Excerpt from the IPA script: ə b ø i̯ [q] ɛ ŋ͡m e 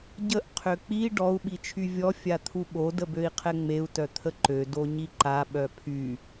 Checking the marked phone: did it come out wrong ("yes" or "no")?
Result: yes